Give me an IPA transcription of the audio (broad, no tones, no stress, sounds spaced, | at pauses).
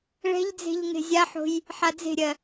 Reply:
ɭ ɛ̤ ʎ d͡z e̤ ʎ ŋ e̤ zʲ a ħ o̤ j | ħ a d͡z e̤ ɾʲ ɜ